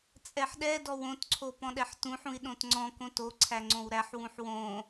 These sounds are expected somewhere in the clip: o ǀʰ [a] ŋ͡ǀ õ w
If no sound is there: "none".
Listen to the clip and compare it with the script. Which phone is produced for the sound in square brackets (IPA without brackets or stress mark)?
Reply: æ